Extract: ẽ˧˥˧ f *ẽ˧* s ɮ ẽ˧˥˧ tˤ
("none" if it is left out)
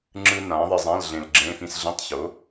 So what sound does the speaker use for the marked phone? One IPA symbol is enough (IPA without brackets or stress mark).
ĩ˧